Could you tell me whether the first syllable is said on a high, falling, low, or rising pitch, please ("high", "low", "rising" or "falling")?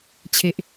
low